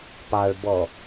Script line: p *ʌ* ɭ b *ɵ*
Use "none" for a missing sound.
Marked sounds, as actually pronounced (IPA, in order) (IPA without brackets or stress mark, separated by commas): ɑ, ɔ